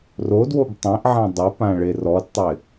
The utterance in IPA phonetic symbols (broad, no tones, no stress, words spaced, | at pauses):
rodwob tˤẽʔʕã dˤɪpã ɭerɔdtˤɪ